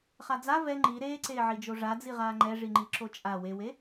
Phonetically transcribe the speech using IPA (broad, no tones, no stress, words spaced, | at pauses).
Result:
χad͡za vɛ ŋ͡ǃi ɾeːǀeːʕid͡ʒo ʐad͡ziʁaː ŋ͡ǃɛʐiŋ͡ǃi ǁot͡ʃʼa wewe